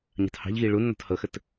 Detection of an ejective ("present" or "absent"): absent